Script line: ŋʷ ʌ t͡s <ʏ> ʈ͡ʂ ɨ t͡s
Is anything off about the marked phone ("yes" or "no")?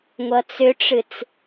no